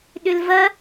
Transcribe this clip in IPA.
ɗʏlvɐ

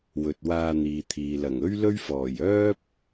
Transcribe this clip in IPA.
wɵ˨t̚waː˧n̪iː˨t̪ʰiː˨ lɐ˨˩ŋɵ˥ɥlɵ˥ɥ fɔː˨˩jœː˥p̚

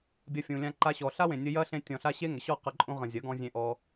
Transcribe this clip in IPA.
bʲɐ˦fʲũ˧lʲã˦ǃa˦ ɕɔ˨ɬa˦wẽ˨ nʲə˧ jɐ˦ɬẽ˧ tʲɔ̃˨ɬa˧ ɕe˦ŋə˨ ɕɔ˦˨qɐ˧ǃʼũ˧ ʁə̃˨ zʲɐ˨˦ɡɔ̃˧zʲẽ˧ ʔɔ˧

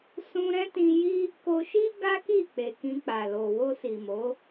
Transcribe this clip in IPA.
sũ˧ɾɛ̃˦tĩ˧ji˦ | ko˧ʃi˦ ɡa˦ki˦˨k͡pe˨ kĩ˧k͡pa˨lo˨ wo˧si˨mo˨˦

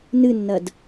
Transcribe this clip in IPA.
nɨnːɐd

